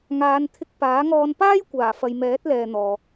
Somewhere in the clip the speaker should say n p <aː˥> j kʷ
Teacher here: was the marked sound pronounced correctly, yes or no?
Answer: yes